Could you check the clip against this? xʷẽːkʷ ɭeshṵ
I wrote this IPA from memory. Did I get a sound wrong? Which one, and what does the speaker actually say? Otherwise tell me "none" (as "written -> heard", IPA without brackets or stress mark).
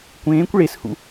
xʷ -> kʷ